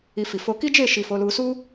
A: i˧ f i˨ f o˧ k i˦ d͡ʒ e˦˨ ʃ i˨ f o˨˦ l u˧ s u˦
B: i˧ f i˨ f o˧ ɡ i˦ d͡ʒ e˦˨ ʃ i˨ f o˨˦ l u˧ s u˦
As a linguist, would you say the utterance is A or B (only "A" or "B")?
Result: A